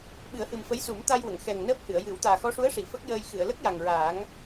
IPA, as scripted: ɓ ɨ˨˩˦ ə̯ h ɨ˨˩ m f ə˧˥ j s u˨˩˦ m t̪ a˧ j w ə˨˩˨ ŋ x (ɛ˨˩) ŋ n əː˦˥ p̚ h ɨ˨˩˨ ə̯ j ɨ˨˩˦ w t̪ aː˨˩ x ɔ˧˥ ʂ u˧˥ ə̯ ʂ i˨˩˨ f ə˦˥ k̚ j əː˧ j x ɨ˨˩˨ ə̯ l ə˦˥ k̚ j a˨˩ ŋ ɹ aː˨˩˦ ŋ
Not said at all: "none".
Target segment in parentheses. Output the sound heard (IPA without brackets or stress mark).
ɛ˨˩